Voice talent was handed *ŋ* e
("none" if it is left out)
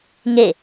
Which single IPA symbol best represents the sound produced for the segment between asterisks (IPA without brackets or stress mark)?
ŋ